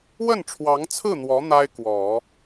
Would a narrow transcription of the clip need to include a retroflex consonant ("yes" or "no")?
yes